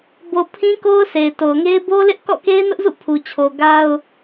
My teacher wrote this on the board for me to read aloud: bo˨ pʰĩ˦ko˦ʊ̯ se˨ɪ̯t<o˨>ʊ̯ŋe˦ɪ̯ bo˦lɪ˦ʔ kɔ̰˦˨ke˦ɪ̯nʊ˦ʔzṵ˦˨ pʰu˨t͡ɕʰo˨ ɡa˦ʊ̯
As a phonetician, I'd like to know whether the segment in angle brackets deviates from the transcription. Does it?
no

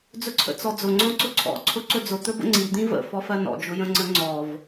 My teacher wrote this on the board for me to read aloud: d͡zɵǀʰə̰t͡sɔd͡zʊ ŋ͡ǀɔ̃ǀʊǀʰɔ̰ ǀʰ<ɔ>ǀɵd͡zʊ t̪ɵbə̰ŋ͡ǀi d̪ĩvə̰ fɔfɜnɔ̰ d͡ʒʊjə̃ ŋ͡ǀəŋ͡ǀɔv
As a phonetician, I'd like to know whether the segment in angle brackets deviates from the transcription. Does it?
yes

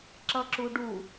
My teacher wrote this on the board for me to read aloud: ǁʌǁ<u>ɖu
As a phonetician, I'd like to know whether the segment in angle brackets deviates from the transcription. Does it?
no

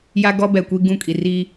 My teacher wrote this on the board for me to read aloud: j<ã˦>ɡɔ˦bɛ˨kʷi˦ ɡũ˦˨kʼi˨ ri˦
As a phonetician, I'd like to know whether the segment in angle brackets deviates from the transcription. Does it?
yes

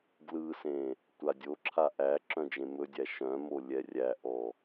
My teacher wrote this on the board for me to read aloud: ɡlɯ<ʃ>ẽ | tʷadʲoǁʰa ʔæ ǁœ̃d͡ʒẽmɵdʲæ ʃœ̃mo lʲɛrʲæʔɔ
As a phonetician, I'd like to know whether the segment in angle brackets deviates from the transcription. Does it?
yes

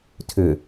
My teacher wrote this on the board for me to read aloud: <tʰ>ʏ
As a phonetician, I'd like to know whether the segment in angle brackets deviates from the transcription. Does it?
no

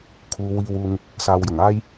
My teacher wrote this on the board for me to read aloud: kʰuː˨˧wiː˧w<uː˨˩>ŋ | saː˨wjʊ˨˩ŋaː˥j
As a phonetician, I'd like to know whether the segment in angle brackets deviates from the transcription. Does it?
yes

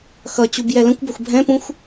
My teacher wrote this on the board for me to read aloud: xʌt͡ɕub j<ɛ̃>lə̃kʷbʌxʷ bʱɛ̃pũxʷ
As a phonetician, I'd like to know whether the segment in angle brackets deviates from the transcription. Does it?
yes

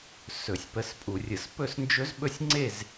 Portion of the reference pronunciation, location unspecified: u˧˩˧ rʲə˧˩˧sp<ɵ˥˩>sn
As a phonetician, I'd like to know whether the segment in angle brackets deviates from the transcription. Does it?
yes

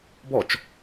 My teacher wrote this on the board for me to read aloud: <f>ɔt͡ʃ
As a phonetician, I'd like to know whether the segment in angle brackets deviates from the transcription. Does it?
yes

